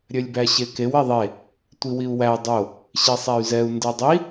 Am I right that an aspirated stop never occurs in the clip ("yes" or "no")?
yes